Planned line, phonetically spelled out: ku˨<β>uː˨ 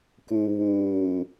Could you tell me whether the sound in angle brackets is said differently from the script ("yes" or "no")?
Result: no